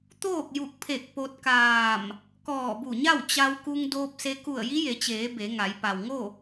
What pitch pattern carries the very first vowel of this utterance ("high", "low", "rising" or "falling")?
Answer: falling